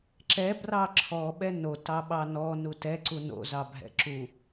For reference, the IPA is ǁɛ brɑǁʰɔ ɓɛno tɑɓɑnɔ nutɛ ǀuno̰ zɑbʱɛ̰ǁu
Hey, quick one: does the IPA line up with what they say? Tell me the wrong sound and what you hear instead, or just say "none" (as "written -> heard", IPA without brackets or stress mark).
none